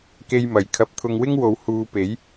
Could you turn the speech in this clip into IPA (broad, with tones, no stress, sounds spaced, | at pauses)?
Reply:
k e˧ j m ɐ˨˩ j kʰ ɐ˨˥ p̚ t̪ʰ ʊ˧ ŋ w ɪ˥ ŋ w o˨˧ w h uː˨˧ p e˨˥ j